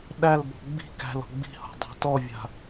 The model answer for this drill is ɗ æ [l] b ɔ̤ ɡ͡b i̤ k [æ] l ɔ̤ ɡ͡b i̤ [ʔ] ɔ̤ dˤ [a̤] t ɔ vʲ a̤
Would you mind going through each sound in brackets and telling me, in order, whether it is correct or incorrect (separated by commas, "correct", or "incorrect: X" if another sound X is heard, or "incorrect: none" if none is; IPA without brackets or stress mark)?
correct, incorrect: æ̤, incorrect: h, correct